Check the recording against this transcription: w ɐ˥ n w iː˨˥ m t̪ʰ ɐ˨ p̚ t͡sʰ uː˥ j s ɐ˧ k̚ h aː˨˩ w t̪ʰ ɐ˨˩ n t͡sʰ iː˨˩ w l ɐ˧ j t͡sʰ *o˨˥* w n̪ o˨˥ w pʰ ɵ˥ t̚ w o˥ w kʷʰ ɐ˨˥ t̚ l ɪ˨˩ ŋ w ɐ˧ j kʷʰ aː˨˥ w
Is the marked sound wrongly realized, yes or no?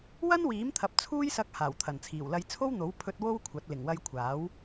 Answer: yes